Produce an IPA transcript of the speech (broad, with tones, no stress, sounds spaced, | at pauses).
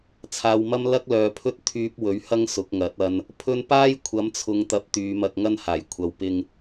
t͡sʰ aː˨ w m ɐ˥ m l ɐ˥ k̚ l œː˨ pʰ ɵ˥ t̚ t̪ʰ yː˧ p̚ w ɵ˨˥ ɥ h ɐ˥ ŋ s ʊ˨˥ k̚ ŋ ɐ˨˥ t̚ ɐ˨ n | pʰ ɵ˥ n p aː˥ j kʷʰ ɐ˨˥ m t͡sʰ ʊ˨˧ ŋ t̪ ɐ˧ p̚ t̪ yː˨˧ m ɐ˧ k̚ ŋ ɐ˥ n h aː˨˩ j kʷʰ ɐ˨ w p ɪ˧ ŋ